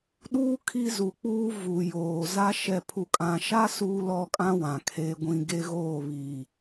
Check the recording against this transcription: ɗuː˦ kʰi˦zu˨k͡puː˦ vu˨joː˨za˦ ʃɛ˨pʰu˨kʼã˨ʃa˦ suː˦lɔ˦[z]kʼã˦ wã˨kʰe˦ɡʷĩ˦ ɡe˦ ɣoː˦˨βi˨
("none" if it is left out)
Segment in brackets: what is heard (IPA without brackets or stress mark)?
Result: none